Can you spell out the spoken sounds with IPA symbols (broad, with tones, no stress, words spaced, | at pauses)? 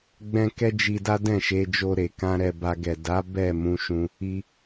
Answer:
ɡ͡bɛ̃˦ kɛ˦d͡ʒi˧da˦ dɛ̃˦˨ʃe˧ d͡ʒo˧ɾe˨kã˧ ɾɛ˧ba˧ ɡɛ˨da˨˦ bɛ˦˨mũ˧ʃũ˧ | i˧